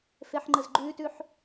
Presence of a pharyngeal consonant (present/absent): present